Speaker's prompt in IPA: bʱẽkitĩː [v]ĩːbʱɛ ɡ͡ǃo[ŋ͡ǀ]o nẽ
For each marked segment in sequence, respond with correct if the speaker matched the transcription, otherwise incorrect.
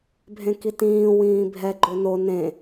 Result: incorrect: w, incorrect: n

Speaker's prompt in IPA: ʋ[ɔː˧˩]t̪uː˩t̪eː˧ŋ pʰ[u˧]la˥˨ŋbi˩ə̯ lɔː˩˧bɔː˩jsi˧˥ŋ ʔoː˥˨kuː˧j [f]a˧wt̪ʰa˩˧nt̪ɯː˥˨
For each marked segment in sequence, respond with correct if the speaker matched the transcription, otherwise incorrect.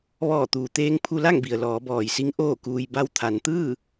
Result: correct, correct, incorrect: b

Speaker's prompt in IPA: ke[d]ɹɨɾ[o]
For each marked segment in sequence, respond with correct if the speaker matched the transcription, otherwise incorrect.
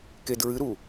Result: correct, incorrect: u

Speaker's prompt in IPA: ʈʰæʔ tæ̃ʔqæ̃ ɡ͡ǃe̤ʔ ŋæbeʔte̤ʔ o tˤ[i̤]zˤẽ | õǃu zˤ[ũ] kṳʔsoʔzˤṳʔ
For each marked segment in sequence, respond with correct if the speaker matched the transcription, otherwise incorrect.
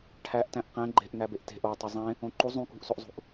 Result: incorrect: i, correct

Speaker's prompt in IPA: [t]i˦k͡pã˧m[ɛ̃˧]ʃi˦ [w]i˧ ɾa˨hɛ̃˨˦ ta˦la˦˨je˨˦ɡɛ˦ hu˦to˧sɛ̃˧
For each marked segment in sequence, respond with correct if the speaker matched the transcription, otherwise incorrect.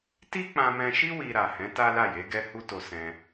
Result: correct, correct, correct

